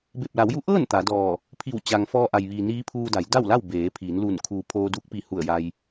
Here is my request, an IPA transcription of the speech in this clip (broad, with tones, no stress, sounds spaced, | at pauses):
b e˧˩ p̚ l a˩˧ w j u˧˥ ʔ ɤː˥˨ n t̪ a˩˧ d ɔː˧˩ | pʰ i˧˩ w t͡ɕ a˩ ŋ f ɔː˧ ʔ a˩ j ʋ iː˩ n iː˧˥ pʰ uː˧ d a˩˧ j d a˥˨ w l a˥˨ w b eː˩˧ pʰ iː˩˧ n l uː˧˩ n kʰ uː˩ pʰ oː˧ d uː˧˥ k̚ p i˧˩ h u˧˩ ə̯ j a˧ j